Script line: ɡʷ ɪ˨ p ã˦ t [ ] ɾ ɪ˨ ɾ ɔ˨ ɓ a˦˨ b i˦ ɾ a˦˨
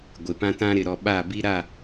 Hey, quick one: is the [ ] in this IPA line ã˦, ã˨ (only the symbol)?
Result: ã˦